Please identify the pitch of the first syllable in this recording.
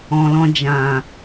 low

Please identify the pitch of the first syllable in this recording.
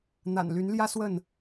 low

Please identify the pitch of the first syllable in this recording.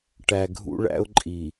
low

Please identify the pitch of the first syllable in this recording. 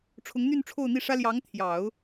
rising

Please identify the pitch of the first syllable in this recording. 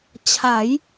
rising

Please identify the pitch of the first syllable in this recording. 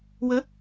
rising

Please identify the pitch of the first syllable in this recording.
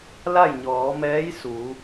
falling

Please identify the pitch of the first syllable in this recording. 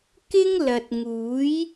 high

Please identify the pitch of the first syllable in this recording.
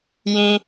high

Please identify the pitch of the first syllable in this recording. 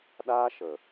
high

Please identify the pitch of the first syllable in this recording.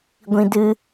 high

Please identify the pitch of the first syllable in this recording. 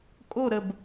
falling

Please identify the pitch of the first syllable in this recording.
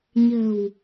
low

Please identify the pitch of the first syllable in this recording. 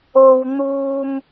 high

